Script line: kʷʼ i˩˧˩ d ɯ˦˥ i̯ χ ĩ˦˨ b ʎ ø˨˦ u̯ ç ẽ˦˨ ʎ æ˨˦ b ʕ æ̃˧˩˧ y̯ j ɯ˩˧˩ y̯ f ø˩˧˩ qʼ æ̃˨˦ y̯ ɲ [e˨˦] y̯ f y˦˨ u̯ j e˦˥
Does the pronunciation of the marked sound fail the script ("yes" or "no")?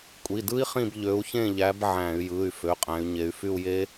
no